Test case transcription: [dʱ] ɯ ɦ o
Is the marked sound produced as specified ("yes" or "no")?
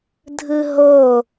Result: yes